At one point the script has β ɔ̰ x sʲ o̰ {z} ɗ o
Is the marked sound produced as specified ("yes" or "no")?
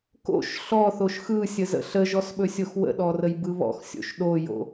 no